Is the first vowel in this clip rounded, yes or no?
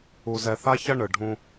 yes